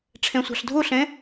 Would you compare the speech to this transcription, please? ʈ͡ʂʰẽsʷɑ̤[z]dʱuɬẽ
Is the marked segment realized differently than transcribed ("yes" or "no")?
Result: yes